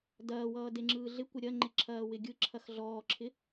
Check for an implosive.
absent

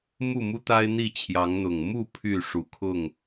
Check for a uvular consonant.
absent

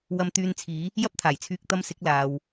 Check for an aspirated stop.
present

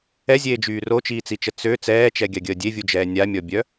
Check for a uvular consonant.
absent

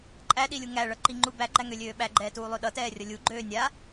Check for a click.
present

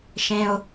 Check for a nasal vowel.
present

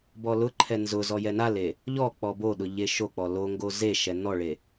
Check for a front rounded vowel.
absent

